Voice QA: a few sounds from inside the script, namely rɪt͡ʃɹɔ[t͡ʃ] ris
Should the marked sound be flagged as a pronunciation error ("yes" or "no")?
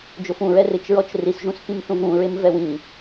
no